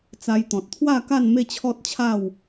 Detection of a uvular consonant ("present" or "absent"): absent